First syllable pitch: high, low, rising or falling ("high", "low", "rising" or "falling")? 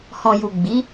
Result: low